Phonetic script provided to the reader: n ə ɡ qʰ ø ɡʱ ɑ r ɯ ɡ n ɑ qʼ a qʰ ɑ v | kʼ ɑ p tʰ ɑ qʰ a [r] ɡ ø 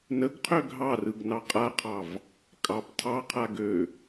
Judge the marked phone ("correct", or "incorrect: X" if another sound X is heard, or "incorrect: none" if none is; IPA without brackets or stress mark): incorrect: none